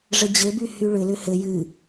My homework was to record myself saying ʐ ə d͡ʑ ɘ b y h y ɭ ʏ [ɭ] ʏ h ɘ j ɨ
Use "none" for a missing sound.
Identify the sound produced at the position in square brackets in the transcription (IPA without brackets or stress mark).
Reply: l